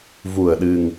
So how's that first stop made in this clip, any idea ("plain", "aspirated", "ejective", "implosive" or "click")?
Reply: implosive